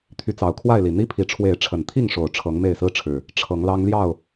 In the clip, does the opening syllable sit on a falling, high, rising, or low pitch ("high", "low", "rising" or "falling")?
rising